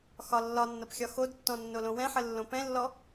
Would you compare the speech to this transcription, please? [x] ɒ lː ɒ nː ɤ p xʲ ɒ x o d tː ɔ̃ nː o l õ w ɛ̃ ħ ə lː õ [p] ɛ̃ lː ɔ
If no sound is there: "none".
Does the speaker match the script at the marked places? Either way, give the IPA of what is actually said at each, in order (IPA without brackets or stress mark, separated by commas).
x, p